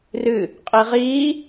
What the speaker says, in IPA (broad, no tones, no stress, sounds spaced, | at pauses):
r ɨ | qʼ i ʁ iː